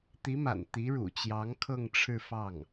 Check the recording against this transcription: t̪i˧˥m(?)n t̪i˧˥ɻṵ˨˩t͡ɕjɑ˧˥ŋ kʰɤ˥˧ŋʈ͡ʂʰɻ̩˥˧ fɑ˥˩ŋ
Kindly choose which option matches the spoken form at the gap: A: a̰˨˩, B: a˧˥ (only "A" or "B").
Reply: A